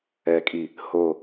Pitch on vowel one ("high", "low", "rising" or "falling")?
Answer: low